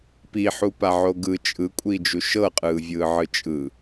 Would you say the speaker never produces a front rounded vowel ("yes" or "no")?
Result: yes